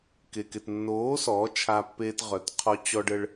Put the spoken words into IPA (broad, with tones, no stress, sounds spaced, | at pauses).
k e˨ k e˨ t nː oː˨˦ s ɔː˨˦ t͡ʃʰ a˧ pː eː˧ t ʁ œ˨ t qʰ ɔ˧ t͡ɕ ɔ˧ ɖ ə˧ ɭ